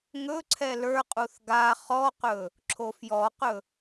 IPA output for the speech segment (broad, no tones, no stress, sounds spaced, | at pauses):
ŋ ɵ ǀʰ ɛ l ə˞ qʼ u θ ɡ a χ ɔ q ɵ | ǁʰ o f j ɔ q ɵ